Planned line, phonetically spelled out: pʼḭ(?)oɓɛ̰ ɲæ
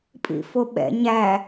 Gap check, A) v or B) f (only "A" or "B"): B